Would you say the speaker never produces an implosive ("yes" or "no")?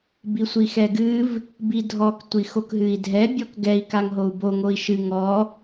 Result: yes